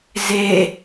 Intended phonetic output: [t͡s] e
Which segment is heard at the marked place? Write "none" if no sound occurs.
z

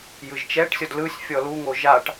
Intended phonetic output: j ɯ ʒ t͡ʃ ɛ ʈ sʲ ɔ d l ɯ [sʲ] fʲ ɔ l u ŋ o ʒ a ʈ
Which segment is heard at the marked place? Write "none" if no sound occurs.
sʲ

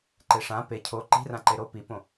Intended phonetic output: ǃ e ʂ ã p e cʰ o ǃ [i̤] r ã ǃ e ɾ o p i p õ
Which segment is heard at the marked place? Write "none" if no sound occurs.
i̤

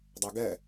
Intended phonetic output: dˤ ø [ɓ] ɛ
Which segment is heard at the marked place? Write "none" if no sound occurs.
ɡ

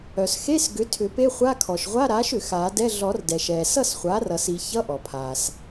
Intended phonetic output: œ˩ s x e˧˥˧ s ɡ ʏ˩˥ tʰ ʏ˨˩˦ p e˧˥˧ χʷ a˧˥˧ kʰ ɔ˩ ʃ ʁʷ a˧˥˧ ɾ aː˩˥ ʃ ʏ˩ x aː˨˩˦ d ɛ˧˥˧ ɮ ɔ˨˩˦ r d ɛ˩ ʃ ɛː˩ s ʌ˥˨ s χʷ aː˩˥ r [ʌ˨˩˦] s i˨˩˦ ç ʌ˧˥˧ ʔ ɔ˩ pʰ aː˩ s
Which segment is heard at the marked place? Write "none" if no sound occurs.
ʌ˨˩˦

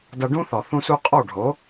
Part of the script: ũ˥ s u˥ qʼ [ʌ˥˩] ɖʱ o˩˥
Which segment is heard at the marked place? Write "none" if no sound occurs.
ɔ˥˩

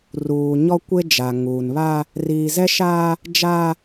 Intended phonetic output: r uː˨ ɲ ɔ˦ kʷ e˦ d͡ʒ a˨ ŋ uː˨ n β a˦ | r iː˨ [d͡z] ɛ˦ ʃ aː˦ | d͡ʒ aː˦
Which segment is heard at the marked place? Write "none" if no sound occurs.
z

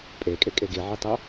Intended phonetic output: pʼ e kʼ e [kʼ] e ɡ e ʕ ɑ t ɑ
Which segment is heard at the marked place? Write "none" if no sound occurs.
kʼ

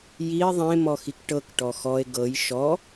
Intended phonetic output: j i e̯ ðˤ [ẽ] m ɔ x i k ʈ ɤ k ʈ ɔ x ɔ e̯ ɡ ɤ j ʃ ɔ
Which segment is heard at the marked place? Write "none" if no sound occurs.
ẽ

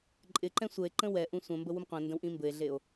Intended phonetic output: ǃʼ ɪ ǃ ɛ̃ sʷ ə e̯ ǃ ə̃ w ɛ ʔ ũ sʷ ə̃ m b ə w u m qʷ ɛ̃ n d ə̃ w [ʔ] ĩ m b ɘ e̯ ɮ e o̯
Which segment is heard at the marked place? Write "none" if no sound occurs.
ʔ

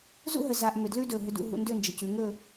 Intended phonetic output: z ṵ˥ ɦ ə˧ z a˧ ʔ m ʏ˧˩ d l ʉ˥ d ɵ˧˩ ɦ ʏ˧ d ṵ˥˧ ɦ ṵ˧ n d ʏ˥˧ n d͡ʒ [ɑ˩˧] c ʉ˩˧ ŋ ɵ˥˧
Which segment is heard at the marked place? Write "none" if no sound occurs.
ə˩˧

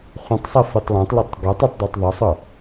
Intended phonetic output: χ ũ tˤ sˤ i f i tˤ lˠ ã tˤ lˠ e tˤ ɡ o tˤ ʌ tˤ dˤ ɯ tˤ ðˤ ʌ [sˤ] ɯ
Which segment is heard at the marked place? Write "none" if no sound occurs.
sˤ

